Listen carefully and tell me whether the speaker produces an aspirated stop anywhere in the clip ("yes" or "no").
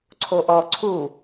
yes